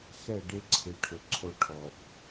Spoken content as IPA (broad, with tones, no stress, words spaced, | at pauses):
xɛ˦˨ɖe˦ǀʰɪ˨˦ʈʰʊ˨ ǀʰo˦ʈʰɔ˨f